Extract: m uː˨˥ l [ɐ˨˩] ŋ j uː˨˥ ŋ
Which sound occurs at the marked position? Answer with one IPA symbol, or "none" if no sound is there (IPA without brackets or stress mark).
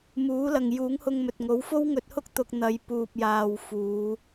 ɐ˨